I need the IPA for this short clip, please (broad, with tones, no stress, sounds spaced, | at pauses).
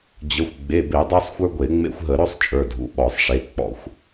d͡ʑ ə˩˧˩ xʷ ɡ͡b e˩˧˩ b e˧˩˧ dˤ ə˞˦ sˤ xʷ ə˞˦ ɡʷ e˧˩˧ ŋ͡m ḛ˦ xʷ ɦ ə˧˩˧ ɾ ɵ˦ sˤ t͡ʃʼ ə˞˩˧˩ dʱ ṵ˩˧˩ ɓ ɔ˧˩˧ sˤ ʂ e˩˧˩ k͡p ɔ̰˧˩˧ xʷ